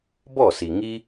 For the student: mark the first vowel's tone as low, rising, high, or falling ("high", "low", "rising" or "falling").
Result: falling